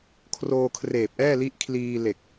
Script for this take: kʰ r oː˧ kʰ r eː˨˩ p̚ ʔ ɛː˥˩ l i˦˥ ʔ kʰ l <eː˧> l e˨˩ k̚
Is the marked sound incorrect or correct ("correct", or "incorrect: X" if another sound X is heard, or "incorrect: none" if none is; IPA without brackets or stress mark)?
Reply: incorrect: iː˧